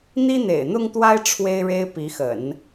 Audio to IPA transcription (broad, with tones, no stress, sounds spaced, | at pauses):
n̪ i˥ n̪ ḛ˨˩ ɪ̯ n̪ ʊ˥ ŋ t̪ w a˥ ɪ̯ ʈ͡ʂʰ w e˥ ɪ̯ ɻ e˥ ɪ̯ p i˧˥ x ə̰˨˩˦ n